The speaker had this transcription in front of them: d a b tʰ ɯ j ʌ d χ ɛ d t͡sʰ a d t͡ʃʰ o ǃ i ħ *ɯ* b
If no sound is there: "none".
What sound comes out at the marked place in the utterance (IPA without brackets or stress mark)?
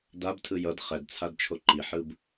ɯ